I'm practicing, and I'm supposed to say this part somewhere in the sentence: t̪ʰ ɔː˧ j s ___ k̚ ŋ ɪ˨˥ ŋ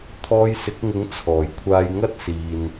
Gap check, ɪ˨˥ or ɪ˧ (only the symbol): ɪ˨˥